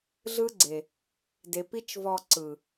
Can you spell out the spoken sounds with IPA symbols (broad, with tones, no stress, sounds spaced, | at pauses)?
ɮ ɯ˦ ɡ͡ǀ e˨ | d e˨ p i˦ t͡ʃ v ɔ˧ ǀ ɯ˨